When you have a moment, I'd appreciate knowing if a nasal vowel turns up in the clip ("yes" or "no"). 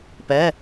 no